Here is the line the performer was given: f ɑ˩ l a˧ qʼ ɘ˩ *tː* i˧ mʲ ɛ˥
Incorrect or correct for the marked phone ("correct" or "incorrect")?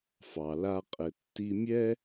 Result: correct